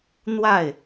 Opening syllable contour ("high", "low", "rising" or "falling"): falling